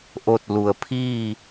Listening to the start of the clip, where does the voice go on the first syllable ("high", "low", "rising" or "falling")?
falling